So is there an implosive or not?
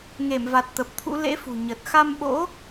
yes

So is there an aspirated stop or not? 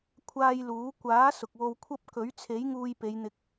yes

